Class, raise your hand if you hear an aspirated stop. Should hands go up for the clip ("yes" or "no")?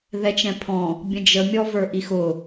yes